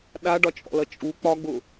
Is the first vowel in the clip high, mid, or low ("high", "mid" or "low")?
low